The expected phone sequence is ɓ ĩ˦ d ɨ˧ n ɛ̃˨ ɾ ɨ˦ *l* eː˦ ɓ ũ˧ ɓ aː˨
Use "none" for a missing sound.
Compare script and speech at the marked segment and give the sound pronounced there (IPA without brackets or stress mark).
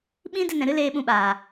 l